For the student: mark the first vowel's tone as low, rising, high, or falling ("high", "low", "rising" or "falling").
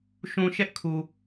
low